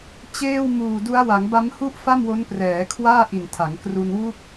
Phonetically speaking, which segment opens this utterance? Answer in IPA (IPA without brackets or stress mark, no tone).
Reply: t͡ɕ